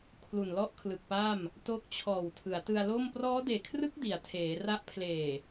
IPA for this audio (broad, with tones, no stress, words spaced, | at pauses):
kʰlu˨˩nlɔ˥˩ʔkʰlɯ˨˩k̚pa˥˩m | to˦˥k̚t͡ɕʰɔː˨˩w tʰɯ˩˦a̯tɯ˧a̯lo˥˩m prɔː˦˥deː˨˩kʰrɯ˦˥k̚ di˩˦a̯tʰeː˩˦ra˦˥ʔ pʰleː˨˩